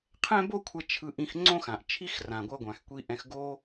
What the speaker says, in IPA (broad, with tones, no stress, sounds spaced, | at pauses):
qʰ ɛ̃˥ b o˥ kʷʰ ɛ˧ t͡ʃʰ ɯ˧ ʔ ĩ˧ x ŋ͡ǀ õ˥ x ã˩ ʔ t͡ʃʰ i˥ x r ã˩ ɡʷ ʌ˧ ɡʷ ã˩ x kʷ i˧ ʔ ɛ̃˧ x ɡ o˥